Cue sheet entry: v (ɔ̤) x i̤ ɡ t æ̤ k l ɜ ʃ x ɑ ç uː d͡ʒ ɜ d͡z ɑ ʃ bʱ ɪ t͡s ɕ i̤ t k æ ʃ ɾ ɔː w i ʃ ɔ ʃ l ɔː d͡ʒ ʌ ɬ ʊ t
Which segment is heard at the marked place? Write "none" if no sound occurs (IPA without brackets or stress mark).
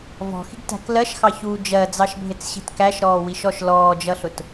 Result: ɔ̤